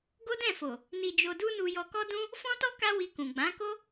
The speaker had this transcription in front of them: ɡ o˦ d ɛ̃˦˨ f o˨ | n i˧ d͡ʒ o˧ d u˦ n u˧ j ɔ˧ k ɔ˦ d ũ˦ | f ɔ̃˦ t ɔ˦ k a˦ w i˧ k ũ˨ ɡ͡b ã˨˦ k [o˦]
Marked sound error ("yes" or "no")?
no